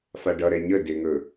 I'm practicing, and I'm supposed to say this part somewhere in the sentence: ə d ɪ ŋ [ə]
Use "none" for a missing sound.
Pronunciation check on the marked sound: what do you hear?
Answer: ɵ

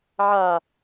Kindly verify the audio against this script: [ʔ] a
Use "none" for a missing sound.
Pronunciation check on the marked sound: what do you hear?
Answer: ʕ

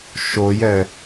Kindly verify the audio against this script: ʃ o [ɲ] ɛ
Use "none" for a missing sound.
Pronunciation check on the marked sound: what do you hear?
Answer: j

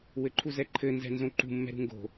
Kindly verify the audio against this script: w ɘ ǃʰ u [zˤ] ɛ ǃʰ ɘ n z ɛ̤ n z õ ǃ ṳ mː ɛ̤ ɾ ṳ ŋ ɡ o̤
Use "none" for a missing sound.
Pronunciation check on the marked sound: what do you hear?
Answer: z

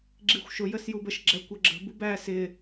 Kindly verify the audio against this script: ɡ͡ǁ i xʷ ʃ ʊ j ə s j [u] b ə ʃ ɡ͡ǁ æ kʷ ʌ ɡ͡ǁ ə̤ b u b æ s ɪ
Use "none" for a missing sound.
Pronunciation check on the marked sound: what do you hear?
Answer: u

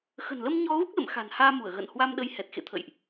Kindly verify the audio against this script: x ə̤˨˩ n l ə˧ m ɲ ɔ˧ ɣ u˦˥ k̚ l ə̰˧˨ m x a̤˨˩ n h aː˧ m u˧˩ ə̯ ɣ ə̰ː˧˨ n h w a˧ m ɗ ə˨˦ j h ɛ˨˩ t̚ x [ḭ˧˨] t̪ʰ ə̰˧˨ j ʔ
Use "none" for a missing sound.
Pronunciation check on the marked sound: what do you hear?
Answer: ḛ˧˨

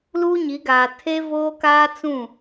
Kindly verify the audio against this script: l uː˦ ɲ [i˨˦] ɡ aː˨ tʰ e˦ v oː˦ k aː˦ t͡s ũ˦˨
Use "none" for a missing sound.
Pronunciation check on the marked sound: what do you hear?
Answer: i˨˦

